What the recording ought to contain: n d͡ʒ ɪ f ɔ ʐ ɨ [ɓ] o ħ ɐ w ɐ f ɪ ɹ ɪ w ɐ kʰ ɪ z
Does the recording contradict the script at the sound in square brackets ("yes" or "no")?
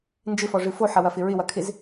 yes